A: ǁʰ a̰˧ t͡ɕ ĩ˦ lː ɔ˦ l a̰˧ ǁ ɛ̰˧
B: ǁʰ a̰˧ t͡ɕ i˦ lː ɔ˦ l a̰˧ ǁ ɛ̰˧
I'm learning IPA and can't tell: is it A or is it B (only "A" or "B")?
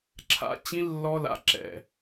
A